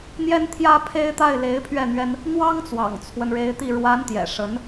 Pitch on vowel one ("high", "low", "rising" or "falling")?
high